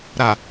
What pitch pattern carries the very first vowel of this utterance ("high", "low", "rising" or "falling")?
low